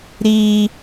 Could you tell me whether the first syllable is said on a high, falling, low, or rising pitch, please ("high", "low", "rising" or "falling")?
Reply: high